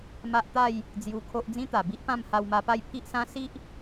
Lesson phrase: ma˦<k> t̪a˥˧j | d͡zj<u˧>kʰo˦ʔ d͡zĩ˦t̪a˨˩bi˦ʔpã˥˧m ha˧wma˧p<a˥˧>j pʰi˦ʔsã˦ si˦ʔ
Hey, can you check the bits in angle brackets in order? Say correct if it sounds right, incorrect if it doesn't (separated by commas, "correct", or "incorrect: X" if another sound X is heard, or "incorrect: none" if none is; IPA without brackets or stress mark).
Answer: incorrect: ʔ, correct, correct